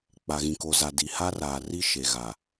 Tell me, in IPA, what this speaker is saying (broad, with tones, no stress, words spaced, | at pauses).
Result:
k͡pa˨ɣĩ˨ko˨za˨ di˨ha˦raː˨ri˦ ʃe˨ɣa˨